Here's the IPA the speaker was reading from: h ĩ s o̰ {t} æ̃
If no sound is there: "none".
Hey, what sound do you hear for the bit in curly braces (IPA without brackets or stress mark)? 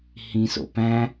p